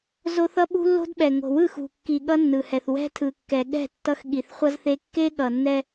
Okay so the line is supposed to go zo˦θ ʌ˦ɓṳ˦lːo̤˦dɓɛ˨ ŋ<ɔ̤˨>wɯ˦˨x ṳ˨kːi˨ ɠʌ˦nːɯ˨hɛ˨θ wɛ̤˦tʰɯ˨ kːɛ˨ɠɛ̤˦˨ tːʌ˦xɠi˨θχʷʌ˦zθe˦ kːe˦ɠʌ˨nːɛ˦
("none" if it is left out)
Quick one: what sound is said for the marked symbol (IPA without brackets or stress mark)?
o̤˨